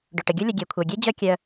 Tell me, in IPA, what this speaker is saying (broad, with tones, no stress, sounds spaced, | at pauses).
ɖ ɵ˩ ʈ ə˩ ɡʲ o˦ lʲ ə˨ ɡʲ e˩ kʷʰ œ˩ ɡʲ e˦ d͡ʑ œ˦ kʲ œ˨